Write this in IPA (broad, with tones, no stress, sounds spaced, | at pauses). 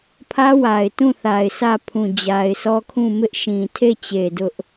pʰ ä˦ w a˨ ɪ̯ t ũ˦˨ θ a˨ ɪ̯ sʰ ä˦˨ pʰ ũ˨ d͡ʑ a˨ ɪ̯ s ɔ˦ kʰ ũ˦˨ m ɪ˦ ʔ ʃ ĩ˨ tʰ e˦˨ t͡ɕ e˨ d ʊ˦ ʔ